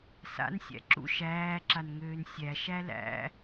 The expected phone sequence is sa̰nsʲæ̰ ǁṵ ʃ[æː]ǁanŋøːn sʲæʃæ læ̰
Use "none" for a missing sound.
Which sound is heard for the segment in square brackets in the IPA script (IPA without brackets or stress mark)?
æː